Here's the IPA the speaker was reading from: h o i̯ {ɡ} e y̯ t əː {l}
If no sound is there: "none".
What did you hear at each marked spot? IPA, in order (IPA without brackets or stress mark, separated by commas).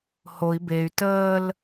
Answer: b, l